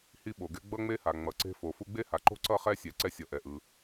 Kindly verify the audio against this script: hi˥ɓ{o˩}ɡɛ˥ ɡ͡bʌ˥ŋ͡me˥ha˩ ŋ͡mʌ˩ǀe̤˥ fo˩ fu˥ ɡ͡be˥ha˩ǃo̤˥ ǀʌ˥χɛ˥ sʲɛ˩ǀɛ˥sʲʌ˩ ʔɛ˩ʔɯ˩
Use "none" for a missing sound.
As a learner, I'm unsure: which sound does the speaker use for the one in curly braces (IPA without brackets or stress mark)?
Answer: o˩